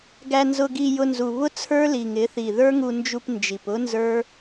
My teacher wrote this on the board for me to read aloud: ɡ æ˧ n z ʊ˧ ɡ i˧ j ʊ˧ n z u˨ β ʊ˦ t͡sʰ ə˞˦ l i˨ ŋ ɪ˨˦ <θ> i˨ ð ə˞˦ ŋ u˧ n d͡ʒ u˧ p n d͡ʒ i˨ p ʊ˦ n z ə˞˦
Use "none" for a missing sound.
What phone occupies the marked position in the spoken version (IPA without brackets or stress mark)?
θ